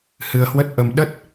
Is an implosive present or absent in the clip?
present